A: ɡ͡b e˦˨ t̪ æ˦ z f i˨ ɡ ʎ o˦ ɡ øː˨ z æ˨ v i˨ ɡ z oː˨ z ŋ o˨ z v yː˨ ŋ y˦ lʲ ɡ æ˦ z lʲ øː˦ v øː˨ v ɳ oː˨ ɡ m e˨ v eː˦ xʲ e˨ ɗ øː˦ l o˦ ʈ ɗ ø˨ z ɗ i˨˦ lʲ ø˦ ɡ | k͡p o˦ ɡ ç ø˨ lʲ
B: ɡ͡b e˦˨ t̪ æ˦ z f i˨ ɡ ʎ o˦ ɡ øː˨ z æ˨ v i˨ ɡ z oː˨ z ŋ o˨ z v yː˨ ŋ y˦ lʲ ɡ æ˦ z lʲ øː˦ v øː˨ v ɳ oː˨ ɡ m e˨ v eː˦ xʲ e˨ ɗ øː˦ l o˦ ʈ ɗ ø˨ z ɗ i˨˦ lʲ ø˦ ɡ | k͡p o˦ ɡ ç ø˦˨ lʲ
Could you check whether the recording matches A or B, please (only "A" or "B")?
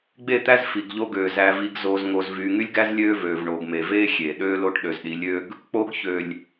A